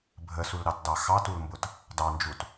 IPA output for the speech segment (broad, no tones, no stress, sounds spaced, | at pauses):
bʱ ə s u l ɾ ɑ t d ɑ x ɑ t u l m b ʊ t | d ɑ n d͡ʒ u t